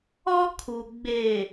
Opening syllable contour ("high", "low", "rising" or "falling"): high